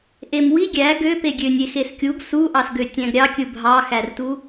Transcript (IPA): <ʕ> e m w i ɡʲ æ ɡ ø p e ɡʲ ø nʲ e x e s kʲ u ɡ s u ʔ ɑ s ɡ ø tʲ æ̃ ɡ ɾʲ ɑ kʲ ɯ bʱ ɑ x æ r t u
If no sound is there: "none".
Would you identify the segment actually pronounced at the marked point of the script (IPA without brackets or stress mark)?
ʔ